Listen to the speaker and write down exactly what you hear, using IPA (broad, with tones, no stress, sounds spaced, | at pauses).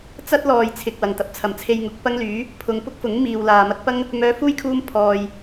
t͡s ɐ˥ t̚ l ɔː˨ j t͡sʰ ɪ˨ k̚ w ɐ˨˩ ŋ t̪ ɐ˨ p̚ t͡sʰ ɐ˨˩ m t͡sʰ e˧ j ŋ ʊ˨˥ k̚ p ɐ˥ ŋ l yː˨˥ | pʰ ʊ˨ ŋ p ʊ˥ k̚ f ʊ˨˥ ŋ m iː˨ w l aː˨ m ɐ˧ t̚ p ɐ˥ ŋ | m œː˨˧ f uː˥ j kʰ uː˧ m pʰ ɔː˨ j